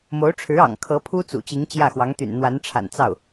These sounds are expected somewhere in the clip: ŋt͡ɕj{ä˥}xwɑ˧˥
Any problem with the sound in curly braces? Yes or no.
yes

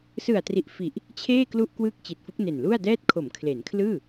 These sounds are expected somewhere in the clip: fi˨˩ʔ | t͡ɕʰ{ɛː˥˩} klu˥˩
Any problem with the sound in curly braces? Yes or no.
yes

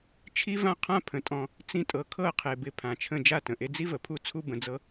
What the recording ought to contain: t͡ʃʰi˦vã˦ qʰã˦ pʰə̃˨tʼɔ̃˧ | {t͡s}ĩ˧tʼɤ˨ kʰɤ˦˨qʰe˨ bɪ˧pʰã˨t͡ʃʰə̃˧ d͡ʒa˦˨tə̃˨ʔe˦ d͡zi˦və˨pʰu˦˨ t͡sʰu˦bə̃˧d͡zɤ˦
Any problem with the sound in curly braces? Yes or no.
no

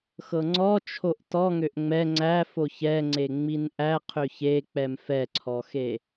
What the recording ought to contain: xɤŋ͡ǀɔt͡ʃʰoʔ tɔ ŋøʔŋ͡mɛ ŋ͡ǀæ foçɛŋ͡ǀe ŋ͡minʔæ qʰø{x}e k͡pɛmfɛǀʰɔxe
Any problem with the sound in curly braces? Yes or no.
yes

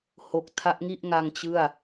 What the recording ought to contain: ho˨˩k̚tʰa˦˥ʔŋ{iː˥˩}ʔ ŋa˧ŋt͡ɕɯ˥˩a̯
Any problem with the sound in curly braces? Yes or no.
yes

